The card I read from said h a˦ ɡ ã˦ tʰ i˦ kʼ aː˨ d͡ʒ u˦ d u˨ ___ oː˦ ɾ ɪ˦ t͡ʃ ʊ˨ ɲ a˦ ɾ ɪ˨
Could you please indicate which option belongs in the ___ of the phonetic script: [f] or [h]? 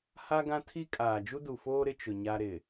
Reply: f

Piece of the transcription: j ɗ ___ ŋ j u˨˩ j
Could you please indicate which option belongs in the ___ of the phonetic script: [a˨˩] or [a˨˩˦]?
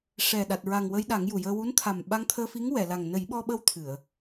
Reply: a˨˩˦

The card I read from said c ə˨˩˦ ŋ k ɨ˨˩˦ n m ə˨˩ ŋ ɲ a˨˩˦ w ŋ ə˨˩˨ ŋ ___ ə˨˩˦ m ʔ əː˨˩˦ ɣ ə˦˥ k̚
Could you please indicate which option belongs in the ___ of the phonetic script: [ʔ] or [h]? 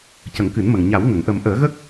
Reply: ʔ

